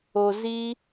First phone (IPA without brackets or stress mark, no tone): o